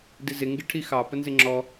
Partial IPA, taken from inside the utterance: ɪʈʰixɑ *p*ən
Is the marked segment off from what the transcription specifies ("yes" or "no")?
no